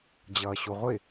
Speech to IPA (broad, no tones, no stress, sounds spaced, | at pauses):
d͡ʑ ʌː ɕ u ʁʷ ɪ